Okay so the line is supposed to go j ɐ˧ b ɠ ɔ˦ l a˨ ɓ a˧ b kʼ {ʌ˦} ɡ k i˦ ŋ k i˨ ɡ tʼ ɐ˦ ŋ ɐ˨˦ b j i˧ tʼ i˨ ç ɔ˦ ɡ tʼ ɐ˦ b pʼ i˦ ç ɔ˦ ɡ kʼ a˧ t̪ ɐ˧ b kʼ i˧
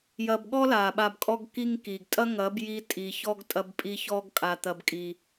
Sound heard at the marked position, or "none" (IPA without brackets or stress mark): ɔ˦